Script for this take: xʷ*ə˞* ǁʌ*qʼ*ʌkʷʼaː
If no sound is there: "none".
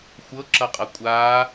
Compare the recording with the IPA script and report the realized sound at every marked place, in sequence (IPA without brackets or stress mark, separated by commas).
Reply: ɤ, qʼ